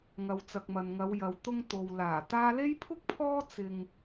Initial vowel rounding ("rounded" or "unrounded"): unrounded